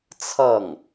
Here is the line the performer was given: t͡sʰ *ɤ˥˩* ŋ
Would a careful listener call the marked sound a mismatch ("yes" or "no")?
no